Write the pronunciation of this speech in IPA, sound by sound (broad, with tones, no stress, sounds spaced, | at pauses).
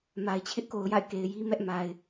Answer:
m a˨ ɪ̯ t͡ɕʰ ɪ˦ ʔ k o˨ ʊ̯ j a̰˦˨ ɪ̯ k e˨ ɪ̯ j i˦ m ɛ˦ ʔ m a˨ ɪ̯